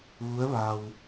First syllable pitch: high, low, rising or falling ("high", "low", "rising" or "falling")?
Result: rising